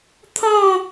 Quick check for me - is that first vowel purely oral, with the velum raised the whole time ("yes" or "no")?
no